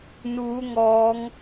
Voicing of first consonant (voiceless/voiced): voiced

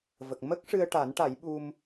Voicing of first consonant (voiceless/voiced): voiced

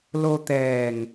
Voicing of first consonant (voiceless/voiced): voiced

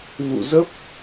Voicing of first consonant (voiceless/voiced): voiced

